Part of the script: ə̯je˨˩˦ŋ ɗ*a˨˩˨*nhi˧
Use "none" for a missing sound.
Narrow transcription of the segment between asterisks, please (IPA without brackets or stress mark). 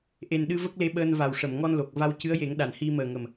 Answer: a˨˩˨